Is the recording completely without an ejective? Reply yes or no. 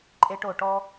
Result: no